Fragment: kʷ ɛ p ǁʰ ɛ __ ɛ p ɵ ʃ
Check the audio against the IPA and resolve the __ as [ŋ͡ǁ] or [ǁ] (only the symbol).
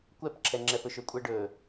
ŋ͡ǁ